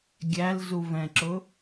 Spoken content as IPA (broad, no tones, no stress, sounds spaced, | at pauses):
ɡʲ æ l z u v ɛ̃ ǁ ʊ